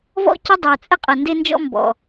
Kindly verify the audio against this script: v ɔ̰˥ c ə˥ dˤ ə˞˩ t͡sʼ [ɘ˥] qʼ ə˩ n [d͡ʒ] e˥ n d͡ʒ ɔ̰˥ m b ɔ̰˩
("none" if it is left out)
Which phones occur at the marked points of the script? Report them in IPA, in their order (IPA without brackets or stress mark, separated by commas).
ɘ˥, d